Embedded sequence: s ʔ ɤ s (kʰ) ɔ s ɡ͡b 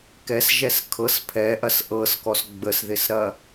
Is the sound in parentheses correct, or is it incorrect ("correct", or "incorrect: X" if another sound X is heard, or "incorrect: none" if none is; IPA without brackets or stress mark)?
incorrect: k